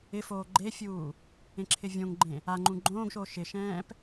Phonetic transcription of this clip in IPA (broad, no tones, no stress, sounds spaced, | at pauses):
ɪ f oː ɡ͡ǃ e fʲ uː | ẽ ǁʰ ɪ vʲ õ ŋ ɡ͡ǃ ẽ | a ŋ͡ǃ ũ ɡ͡ǃ õː ɡ ʃ oː ʃ ɪ ʃ ɛ̃ː p